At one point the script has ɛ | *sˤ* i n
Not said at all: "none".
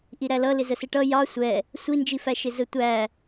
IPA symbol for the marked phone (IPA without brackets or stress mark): sʷ